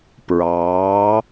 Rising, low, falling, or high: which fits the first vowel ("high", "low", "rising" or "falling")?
rising